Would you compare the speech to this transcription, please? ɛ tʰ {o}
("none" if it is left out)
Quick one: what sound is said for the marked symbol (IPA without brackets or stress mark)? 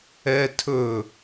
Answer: ɵ